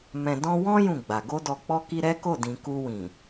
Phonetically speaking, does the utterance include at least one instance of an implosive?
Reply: no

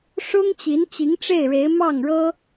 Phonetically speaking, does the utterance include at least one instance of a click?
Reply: no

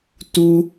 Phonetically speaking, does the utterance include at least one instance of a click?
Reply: no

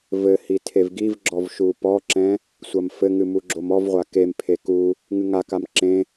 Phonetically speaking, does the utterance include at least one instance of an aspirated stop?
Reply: yes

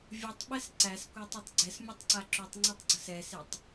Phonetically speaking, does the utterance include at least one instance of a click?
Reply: yes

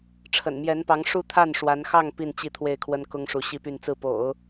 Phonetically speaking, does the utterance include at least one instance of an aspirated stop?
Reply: yes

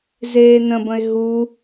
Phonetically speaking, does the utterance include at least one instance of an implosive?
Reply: no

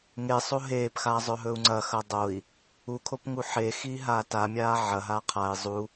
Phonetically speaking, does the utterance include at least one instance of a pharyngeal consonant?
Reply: yes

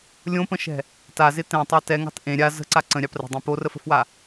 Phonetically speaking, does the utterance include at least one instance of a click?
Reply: yes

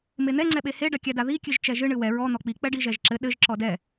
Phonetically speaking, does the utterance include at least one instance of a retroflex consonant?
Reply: yes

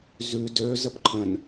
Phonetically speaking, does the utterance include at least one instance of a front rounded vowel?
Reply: yes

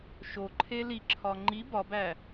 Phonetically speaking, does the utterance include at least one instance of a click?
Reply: yes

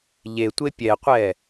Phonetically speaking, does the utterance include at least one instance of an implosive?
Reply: no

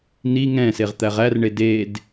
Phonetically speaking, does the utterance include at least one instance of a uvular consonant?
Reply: yes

